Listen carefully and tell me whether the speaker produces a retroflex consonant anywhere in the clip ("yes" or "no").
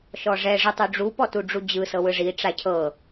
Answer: yes